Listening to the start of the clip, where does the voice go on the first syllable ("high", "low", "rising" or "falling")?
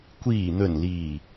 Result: low